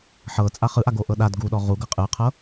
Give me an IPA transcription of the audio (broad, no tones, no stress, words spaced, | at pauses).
ħɤ t͡sʼaχɯʔaɡo ʔɤɗad ɡuɗɔ ʁu ɡɤqʼɯqʰɤ